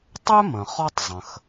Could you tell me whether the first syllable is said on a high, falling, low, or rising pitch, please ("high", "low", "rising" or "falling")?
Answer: high